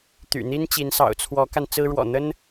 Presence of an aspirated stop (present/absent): present